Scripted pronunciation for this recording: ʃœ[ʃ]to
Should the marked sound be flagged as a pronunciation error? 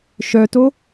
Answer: yes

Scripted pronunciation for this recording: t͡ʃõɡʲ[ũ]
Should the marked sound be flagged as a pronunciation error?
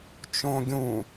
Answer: no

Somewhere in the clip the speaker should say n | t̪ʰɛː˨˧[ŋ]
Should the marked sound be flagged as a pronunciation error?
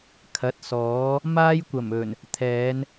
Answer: yes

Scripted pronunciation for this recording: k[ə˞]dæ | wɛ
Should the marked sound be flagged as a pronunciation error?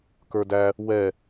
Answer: no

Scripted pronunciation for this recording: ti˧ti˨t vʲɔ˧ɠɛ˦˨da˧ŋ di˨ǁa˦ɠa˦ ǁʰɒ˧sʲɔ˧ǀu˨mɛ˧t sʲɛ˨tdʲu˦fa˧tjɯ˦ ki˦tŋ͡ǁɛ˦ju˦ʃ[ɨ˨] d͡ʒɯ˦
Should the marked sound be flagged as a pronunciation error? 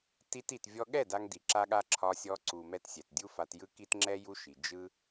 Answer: yes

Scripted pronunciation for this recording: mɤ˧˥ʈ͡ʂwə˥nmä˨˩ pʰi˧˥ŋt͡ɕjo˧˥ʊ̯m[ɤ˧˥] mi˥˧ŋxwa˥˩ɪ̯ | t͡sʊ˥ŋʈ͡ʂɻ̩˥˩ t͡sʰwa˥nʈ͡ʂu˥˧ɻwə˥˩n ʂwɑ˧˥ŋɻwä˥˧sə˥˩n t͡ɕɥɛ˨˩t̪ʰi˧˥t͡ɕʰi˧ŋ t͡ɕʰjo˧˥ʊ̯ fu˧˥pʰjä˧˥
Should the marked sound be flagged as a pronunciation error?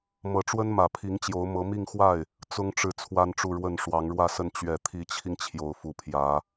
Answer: no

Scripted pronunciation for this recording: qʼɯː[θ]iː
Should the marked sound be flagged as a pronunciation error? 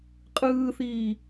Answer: no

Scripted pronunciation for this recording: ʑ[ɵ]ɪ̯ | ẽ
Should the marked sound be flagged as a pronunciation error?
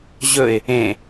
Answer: no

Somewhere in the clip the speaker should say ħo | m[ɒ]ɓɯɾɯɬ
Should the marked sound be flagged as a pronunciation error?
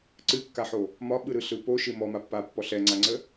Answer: no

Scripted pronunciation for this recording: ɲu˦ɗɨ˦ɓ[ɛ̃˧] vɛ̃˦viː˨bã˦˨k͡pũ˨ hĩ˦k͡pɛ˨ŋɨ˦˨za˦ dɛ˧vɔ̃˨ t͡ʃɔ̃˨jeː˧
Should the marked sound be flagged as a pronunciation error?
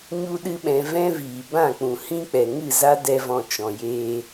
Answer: no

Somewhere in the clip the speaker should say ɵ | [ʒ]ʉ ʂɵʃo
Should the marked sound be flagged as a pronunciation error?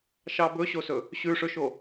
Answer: yes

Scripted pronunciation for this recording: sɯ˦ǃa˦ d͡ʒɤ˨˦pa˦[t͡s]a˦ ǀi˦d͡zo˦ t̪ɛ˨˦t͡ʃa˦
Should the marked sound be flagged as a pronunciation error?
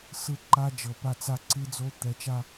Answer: no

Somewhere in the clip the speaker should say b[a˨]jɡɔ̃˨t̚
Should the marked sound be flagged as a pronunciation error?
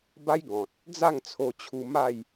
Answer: yes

